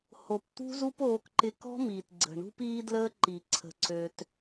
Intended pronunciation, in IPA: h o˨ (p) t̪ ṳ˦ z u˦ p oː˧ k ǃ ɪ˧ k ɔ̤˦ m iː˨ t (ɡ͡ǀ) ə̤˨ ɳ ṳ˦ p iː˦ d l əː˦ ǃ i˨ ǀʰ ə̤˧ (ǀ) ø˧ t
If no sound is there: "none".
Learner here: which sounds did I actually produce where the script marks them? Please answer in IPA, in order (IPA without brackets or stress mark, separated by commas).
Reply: p, ɡ͡ǀ, ǀ